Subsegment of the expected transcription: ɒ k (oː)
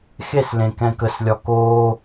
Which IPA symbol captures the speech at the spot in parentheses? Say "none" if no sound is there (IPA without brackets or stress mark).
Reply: oː